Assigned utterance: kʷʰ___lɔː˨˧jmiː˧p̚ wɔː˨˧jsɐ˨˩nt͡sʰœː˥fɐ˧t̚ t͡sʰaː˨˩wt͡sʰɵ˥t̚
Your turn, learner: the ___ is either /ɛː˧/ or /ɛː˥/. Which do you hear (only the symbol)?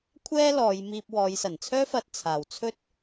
ɛː˥